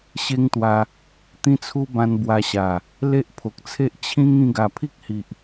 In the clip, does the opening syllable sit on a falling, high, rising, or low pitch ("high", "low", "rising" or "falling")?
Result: high